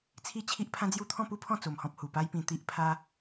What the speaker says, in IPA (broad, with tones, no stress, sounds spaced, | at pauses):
t͡sʰ i˥˧ t͡ɕʰ i˦ ʔ pʰ ã˦ d͡z j u˦ t̪ʰ ɔ̃˥˧ p u˦ pʰ ɔ̃˥˧ t͡s o˧ m h ɔ̃˦ p̚ h u˨˩ p a˦ j p ĩ˧ t̪ i˦ ʔ pʰ a˦